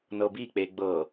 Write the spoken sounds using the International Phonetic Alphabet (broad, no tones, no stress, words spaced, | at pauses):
nɤbik͡pe ɡ͡bɤ